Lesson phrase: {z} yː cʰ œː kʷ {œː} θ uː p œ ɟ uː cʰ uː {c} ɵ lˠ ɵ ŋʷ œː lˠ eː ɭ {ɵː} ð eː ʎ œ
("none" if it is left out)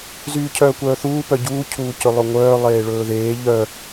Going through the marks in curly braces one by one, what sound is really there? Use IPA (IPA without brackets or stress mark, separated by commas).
z, œː, c, ɵː